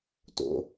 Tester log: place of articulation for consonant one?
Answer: alveolar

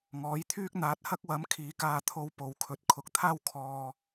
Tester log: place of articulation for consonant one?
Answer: velar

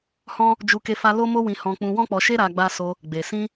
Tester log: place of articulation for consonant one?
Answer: glottal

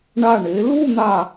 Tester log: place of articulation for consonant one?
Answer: retroflex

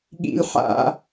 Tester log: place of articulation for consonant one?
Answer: velar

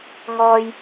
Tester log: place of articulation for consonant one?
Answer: velar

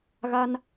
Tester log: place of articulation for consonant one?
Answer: velar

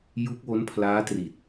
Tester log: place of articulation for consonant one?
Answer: palatal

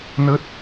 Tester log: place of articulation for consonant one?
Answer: alveolar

